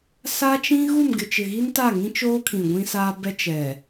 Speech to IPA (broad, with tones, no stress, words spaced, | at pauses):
sa˦t͡ʃĩ˦ ɣu˦˨mɡɪ˨t͡ʃɪ˨ɣi˦n ta˦˨ŋĩ˦t͡ʃoː˦kʰĩ˨ ɡʷĩ˦saː˦ bɛ˦ t͡ʃɛ˨